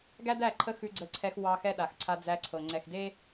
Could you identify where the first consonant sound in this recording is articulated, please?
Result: velar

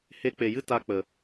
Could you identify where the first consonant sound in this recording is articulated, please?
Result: glottal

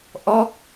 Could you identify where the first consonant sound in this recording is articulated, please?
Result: glottal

